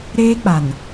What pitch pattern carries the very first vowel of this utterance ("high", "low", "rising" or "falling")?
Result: high